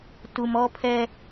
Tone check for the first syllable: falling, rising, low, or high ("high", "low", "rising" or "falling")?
low